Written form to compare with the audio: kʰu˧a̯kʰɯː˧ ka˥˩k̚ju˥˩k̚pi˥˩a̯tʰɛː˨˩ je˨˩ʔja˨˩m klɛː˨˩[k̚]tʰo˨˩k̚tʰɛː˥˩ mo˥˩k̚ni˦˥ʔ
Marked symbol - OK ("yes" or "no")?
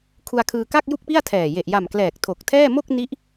yes